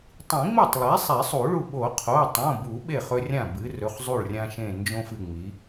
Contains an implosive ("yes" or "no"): yes